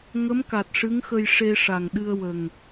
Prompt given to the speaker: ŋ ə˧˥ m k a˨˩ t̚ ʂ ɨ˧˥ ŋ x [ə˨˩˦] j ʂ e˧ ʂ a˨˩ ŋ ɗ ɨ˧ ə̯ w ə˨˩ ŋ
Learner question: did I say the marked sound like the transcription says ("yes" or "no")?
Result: no